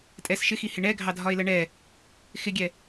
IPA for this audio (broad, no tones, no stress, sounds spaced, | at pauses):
tʼ ɛ s ʃ ɪ x i h ɪ ɳ ɛ ɡʱ ɑ dʱ ɒ e̯ l ɜ ɳ ɛ | x ɪ ɡʲ ɛ